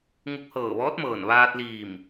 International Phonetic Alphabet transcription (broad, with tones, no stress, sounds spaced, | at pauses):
ŋ u˧ k̚ h ɤː˧˩ ʋ ɔː˧˥ t̚ m ɤː˧˩ n ʋ aː˧ t̚ l iː˧˩ m